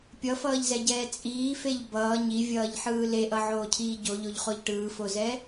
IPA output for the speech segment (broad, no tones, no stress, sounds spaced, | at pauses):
pʲ ʌ f ʌː ʎ z ɛ ɟ ɛː t͡sʼ iː f e ʎ b ʌː ɲ i vʲ ʌː ʎ ħ ɯː l e ʔ ʌ ʕ oː cʰ iː ɟ o ʎ o ʎ χ o ʎ ʈ ɯː f o z ɛ